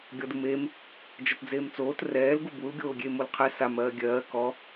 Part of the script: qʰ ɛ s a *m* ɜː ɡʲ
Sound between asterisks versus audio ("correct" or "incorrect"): correct